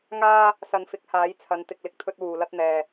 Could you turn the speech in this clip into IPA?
ŋaː˥ | sɐ˧nfɪ˨˥k̚ haː˨˥jt͡sʰɐ˨˧n t̪ɪ˨k̚lɪ˧k̚t̪ʰɵ˧t̚ wuː˨lɐ˥t̚ n̪ɛː˨

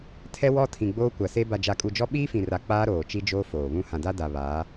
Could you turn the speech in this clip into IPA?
tʰɛ˦wɔ˦ tʰĩ˨ɡ͡boː˦kʷa˨se˦ ba˨d͡ʒa˨kʼu˨d͡ʒɔ˦ ɓiː˦fĩ˨ra˨ k͡paː˦ɾoː˨t͡ʃi˦d͡ʒoː˦ foː˨βũ˦ hã˨da˦da˨ βaː˨˦

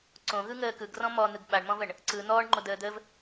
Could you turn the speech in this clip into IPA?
ǀõɣɯŋəː kɯɡrɔ̃ mɔn̪ɯɡ ɓaɳmɔ̃vəɳ | ǀɯ n̪ɔːɳŋ͡ǃodəːd̪əːv

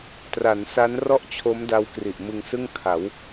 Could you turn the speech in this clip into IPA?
tra˩˦nsa˦˥nrɔ˥˩ʔt͡ɕʰo˦˥m da˦˥wkri˨˩ʔmɯ˧ŋsɯ˥˩ŋ kʰa˩˦w

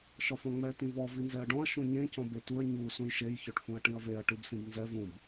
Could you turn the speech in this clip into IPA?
ʃɒfɔ̃ŋ͡mɛ tĩvɔ vinzɛɐ̯ɖɔ̃ɐ̯ ʃũɲẽ cɔ̃betuɐ̯ ɲu sũjʃej çɔʈfũɐ̯ʈĩɐ̯veɐ̯ ʈibsĩbnzɛ vũb

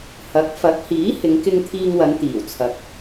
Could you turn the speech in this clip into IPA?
hɐ˨˥k̚ fɐ˨˥k̚hiː˨˥ hɪ˨˧ŋkɪ˧ŋt̪ʰiː˧ŋwɐ˨˧n t̪iː˨˩wt͡sʰɐ˨k̚

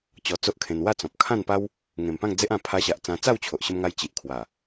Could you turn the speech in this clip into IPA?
t͡ɕɔ˧t͡so˦ʔkʰẽ˧n wa˥˧ t͡sɔ̃˨p̚ kʰã˥˧npa˦w | ŋẽ˨˩mpã˥˧ŋd͡ze˦ʔ ã˧ pʰa˧ɕa˨ʔ t͡sã˧ t͡sa˥˧wt͡ɕʰo˨ʔɕə˧mŋa˧j t͡ɕi˨ʔkʰwa˨˩

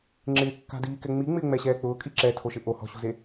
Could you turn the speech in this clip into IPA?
ŋ͡ǁɪːkːa̤diːkɛ ŋ͡miŋ͡mɪːŋ͡mɛɕɛː k͡pʊːkʼi ǁɛtʰoʃɪ ʔohɔ̤ɕṳze

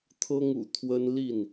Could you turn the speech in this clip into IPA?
t̪ʰɤ˦ŋṵ˨˩ t̪ʰwə˦nli˥˨n

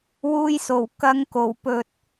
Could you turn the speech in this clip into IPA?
wuː˧jso˨˩w kɐ˨˧ŋko˨˩wpɵ˨t̚

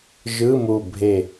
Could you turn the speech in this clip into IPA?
ʒɯ˧˥˧mu˧˩bʱe˧˩

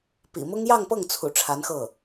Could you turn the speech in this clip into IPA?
pḭ˨˩mʊ˥ŋ jɑ˥˧ŋpɤ˥˩ŋt͡sʰṵ˨˩ ʈ͡ʂʰa˧˥nxɤ˥˩

